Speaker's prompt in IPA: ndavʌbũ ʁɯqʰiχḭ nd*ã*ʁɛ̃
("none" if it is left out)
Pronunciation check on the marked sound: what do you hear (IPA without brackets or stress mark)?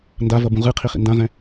ã